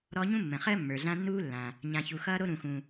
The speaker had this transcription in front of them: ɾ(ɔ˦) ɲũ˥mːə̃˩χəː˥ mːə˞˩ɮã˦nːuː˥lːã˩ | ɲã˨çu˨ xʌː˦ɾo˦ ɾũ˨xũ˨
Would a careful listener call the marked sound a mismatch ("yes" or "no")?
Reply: no